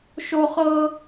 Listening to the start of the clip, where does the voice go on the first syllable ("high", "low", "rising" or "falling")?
high